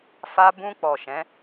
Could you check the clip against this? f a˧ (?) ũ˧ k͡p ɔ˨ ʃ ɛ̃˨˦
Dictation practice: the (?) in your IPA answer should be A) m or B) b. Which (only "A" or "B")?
B